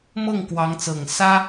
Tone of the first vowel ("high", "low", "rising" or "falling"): falling